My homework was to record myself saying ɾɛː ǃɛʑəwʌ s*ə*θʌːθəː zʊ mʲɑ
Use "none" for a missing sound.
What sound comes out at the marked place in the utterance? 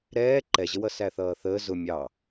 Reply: æ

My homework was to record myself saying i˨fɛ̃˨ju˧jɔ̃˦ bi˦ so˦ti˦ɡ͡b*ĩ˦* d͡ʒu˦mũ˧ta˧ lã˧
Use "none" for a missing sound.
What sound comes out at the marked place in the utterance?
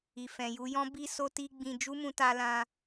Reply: ĩ˧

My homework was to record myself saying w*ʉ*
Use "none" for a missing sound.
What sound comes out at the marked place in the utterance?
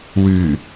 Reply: ʉ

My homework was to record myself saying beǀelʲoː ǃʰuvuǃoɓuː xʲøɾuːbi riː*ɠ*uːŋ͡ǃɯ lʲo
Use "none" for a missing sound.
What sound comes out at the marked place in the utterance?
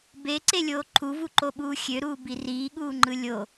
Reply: ɠ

